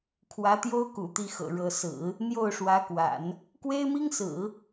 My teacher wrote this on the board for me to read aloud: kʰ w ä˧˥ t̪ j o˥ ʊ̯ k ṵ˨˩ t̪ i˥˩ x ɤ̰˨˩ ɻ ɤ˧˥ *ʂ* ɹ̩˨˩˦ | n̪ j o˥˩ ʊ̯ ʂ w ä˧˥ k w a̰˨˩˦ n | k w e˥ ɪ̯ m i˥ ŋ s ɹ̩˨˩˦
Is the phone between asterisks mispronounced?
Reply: yes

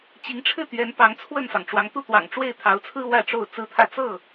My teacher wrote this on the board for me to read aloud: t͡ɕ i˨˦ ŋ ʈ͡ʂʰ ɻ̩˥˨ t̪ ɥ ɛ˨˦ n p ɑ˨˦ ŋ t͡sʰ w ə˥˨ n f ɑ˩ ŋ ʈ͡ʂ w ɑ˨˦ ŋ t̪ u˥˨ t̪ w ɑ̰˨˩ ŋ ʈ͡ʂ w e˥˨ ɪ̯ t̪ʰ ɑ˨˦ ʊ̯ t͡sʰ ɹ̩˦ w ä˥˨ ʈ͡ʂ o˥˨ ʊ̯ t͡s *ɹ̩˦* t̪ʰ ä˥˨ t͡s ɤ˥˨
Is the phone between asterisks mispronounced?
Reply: no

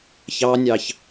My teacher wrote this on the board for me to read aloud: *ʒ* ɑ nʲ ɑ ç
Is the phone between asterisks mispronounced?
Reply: yes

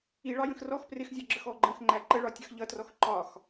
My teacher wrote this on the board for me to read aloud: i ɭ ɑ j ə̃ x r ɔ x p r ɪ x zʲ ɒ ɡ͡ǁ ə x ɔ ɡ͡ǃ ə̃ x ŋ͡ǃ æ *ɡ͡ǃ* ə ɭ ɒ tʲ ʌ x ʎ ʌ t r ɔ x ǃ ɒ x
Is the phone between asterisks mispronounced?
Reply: yes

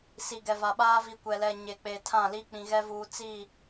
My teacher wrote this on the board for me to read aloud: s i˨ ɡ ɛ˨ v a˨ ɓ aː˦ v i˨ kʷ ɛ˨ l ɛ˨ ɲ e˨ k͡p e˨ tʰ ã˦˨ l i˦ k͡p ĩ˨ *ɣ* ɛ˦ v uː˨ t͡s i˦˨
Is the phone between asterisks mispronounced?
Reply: no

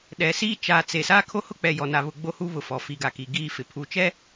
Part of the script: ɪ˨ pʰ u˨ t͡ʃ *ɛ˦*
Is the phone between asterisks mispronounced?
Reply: no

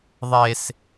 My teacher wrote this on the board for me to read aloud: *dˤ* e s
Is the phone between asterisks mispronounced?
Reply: yes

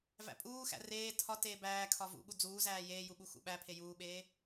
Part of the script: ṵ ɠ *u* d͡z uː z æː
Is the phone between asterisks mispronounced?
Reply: no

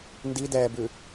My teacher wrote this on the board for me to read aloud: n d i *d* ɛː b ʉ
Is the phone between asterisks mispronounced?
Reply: no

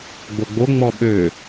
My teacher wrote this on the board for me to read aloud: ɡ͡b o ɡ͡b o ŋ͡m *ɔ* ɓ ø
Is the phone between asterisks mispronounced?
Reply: no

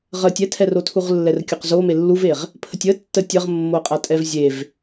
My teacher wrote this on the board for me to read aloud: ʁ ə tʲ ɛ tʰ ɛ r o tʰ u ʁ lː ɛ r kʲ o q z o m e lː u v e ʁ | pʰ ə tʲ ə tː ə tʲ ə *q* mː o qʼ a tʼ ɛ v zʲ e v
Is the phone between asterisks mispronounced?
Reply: yes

